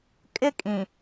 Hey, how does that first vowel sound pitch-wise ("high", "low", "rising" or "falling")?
high